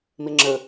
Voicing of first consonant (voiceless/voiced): voiced